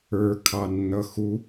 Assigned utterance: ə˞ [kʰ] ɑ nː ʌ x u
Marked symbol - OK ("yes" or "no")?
yes